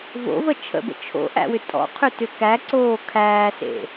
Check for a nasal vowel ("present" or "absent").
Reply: absent